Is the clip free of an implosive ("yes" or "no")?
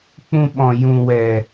no